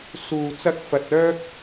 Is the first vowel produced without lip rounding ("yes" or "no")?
no